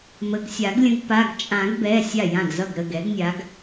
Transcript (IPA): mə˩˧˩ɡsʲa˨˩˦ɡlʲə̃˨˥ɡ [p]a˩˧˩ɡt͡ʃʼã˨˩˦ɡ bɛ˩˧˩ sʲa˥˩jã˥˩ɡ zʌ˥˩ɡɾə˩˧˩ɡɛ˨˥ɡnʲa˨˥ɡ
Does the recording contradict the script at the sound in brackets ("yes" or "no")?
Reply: no